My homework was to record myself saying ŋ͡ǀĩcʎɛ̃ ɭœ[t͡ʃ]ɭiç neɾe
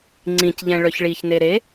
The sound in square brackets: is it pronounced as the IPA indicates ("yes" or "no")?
no